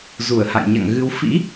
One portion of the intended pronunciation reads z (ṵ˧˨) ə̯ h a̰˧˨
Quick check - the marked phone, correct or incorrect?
incorrect